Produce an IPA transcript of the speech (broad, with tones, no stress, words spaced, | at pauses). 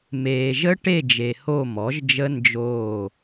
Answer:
meː˨ʒə˦˥ ʈe˦˨d͡ʒe˨ ho˦˨mɔ˩˥ʒd͡ʒə˦˥ nd͡ʒoː˦˨